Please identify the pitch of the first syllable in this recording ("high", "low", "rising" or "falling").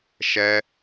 high